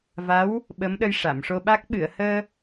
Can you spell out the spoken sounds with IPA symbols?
va˧˥w | ɓə˧˥mɗə˧j ʂa˨˩˨mʂo˧ɓa˦˥k̚ ɓɨ˨˩˨ə̯həː˧

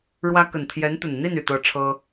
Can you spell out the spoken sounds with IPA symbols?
ɻwä˥ kə˨˩nt̪ʰjɛ˧˥nt̪ə˨˩nn̪i˥˩n y˨˩t̪ɤ˥˩ʈ͡ʂʰɤ˥

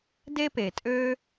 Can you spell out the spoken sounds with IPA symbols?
de˥peː˨tʼø˥

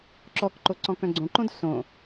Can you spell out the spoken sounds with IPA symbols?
ǁɔkǃo ǀɔ̃kœ̃ɡ͡ǀõǃõd sõ

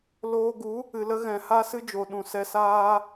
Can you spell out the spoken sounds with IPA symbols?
loː˧ɡu˨˦ | ɨ˨lə˧ ɣɛ̃˨ha˦sɨ˦d͡ʒo˨ ɗũ˨sɛ˧saː˦

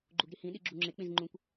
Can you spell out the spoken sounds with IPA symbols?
ɡ͡ǃuɡɾihĩ ɗiɡ͡ǁuŋ͡ǁek͡pĩz ŋ͡ǃũkʷ

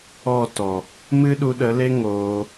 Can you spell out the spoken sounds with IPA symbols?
ɔ˦˨ tɔ˨ | mɨ˦ɗu˧ɗə˨˦le˦ ŋoː˧

